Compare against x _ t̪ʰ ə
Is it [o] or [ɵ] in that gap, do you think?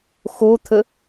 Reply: o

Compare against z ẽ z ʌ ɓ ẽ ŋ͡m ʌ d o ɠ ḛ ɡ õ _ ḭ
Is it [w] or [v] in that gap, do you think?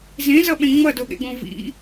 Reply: v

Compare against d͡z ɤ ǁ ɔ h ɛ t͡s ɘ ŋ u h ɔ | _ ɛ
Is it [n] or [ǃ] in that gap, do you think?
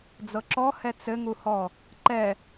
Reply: ǃ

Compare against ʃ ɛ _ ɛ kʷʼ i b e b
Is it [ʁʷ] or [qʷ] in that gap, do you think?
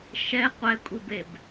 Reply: qʷ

